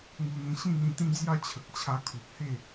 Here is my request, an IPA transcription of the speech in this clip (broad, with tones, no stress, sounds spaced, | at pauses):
ŋ u˧ n̪ ĩ˧ ɕ ĩ˥˧ n̪ ĩ˧ t̪ ĩ˦ d͡z j a˥˧ t͡ɕʰ ə˨ k̚ t͡ɕʰ a˧ kʰ u˨ p̚ h e˥˧